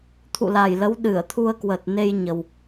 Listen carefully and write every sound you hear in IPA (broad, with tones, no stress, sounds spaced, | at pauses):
t̪ʰ ṵ˧˨ l a˨˩ j l ə˨˦ w ɗ ɨ˧˩ ə̯ t̪ʰ u˧ ə̯ k w ə˨˩ t̚ n e˧ j ɲ ə˨˩ w